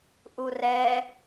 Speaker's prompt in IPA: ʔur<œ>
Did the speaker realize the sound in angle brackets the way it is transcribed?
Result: no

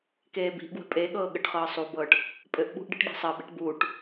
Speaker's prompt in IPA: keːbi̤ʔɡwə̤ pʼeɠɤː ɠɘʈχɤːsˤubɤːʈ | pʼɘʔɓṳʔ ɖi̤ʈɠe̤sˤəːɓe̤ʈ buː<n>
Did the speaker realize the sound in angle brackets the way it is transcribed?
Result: no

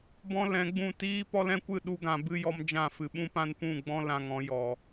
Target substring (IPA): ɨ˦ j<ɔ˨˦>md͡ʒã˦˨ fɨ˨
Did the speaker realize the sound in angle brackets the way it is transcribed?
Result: no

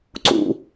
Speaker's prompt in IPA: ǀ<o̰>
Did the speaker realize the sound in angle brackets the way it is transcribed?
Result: no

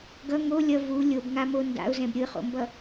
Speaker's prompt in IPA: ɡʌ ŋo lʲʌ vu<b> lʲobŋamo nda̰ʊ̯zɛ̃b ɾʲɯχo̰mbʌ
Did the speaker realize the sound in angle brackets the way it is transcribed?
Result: no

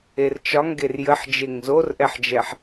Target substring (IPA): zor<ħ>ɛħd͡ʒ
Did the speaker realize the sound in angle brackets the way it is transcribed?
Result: no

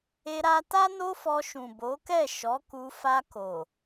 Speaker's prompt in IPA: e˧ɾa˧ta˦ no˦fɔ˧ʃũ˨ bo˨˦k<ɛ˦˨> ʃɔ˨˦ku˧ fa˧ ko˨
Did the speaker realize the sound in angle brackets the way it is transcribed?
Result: yes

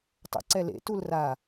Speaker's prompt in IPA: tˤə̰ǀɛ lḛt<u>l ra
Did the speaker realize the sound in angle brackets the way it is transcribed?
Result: yes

